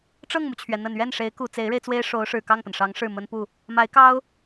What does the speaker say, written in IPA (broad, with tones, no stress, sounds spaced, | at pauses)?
ʈ͡ʂ ɤ˥˩ ŋ m u˩ t͡ɕʰ ɥ ɛ˩ n̪ ə˨˩ n ɥ ɛ˥˩ n ʂ e˧˥ ɪ̯ k u˨˩ t͡s e˧˥ ɪ̯ ɻ e˧ ɪ̯ t͡s w e˥ ɪ̯ ʂ o˧˥ ʊ̯ ʂ ɻ̩˨˩ k ɑ˥˩ ŋ p ə˩ n ʂ ɑ˧˥ ŋ ʂ ɻ̩˥˩ m ə˥ n p u˥˩ | m a˧˥ ɪ̯ k ɑ˥ ʊ̯